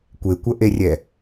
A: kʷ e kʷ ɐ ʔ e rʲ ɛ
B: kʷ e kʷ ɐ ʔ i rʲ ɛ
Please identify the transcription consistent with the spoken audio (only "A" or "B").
A